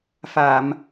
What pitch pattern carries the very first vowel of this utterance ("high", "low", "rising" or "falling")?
low